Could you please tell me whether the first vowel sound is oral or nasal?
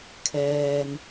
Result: oral